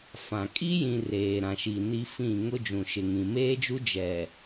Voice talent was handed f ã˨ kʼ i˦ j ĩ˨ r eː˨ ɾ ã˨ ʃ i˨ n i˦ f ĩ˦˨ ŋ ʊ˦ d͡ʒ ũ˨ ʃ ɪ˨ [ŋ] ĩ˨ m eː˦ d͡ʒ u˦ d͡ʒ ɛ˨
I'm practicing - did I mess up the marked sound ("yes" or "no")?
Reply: no